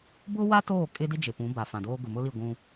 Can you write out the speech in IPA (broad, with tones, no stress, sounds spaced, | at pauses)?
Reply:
b ʊ˦ w a˦ t oː˦˨ kʼ ɪ˦ d ɪ˦ d͡ʒ e˨ p ũ˨˦ b a˨ f ã˨ d oː˦ ɡ ʊ˨ m ʊ˦ l i˦˨ ɡʷ ũ˦